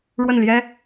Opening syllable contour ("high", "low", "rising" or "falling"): falling